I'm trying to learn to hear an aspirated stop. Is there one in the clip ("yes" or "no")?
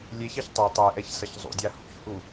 no